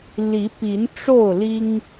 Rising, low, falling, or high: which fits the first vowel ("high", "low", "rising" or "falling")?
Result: rising